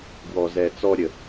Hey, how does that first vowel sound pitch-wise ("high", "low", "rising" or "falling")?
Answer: low